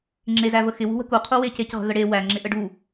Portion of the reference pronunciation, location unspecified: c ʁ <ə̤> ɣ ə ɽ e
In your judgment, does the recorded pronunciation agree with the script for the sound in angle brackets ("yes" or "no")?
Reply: yes